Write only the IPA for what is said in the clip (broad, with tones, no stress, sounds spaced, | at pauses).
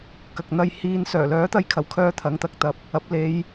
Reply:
k ɐ˨ k̚ n̪ ɐ˧ j h iː˧ n s œː˨˩ l œː˨˥ t̪ ɐ˧ j kʰ ɐ˨˩ w kʰ œː˧ t̪ʰ ɐ˨˥ ŋ t̪ ɐ˨ k̚ t̪ ɐ˨˥ p̚ | ɐ˨˥ p̚ l e˨˧ j